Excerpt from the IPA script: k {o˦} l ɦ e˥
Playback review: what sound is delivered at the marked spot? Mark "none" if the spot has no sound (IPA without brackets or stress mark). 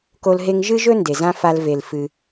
o˦